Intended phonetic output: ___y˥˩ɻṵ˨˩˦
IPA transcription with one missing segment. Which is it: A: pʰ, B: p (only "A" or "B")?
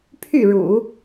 A